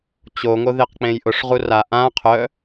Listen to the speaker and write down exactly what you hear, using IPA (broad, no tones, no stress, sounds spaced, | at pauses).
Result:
t͡ɕ o ŋ o ð e q k͡p ẽ j ʔ ʊ ʂ ʁ u r a ʔ ã qʰ œ